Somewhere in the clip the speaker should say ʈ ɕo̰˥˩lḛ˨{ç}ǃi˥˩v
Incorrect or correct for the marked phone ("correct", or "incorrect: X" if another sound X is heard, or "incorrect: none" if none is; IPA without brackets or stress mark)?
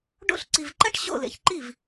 correct